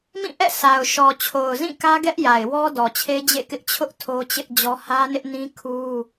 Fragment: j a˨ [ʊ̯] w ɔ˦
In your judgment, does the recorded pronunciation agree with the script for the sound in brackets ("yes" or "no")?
no